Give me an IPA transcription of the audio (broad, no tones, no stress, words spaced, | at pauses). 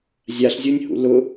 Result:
zʲaɬzʲonʲhṵ lʊ